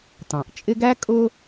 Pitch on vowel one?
low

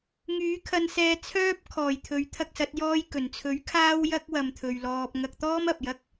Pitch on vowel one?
rising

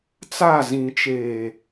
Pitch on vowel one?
falling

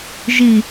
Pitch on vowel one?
low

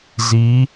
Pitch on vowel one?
rising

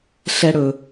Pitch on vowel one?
high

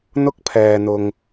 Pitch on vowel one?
high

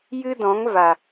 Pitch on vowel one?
high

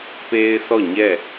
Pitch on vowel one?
high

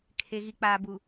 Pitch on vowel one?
low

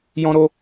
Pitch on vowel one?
high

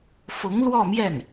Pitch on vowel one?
rising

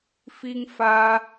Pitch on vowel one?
high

